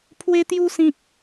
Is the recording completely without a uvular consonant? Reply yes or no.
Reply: yes